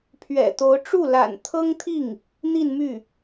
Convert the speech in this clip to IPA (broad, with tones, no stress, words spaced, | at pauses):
pʰɥɛ̰˨˩t̪o˧˥ʊ̯ ʈ͡ʂu˥˩la̰˨˩n t̪ʰɤ˥ŋt̪ʰi˥˩ŋ | n̪i˥˧nmy˥˩